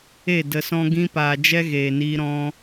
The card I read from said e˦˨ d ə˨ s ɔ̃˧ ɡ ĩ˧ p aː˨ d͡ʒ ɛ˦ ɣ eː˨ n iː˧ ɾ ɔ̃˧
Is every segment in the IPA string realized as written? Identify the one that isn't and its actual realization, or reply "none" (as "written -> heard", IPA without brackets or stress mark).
none